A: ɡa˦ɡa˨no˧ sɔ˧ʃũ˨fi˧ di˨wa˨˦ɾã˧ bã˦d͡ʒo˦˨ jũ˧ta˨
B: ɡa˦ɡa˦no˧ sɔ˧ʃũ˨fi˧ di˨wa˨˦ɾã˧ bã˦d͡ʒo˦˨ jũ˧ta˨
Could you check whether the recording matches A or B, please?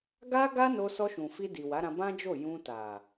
B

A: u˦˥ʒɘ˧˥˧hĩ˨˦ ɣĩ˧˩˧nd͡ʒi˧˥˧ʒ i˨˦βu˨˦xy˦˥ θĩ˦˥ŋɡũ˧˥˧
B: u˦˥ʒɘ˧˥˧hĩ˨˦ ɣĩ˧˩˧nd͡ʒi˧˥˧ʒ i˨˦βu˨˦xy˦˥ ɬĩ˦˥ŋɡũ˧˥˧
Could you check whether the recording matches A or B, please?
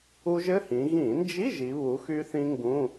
A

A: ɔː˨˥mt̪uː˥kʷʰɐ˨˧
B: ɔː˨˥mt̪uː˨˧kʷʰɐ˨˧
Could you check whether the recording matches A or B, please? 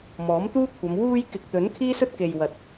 A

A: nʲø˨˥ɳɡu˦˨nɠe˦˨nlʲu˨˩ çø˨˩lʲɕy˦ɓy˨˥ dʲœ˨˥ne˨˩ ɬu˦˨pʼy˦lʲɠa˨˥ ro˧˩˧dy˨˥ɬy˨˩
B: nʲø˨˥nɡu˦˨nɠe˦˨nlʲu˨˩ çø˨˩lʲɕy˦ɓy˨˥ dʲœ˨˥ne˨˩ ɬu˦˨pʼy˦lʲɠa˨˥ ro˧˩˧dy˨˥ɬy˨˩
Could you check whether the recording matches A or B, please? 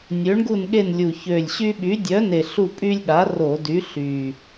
A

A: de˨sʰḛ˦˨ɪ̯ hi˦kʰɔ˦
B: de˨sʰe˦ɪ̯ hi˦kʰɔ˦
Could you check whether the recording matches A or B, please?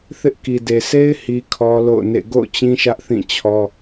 B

